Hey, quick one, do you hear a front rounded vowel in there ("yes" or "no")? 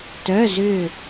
yes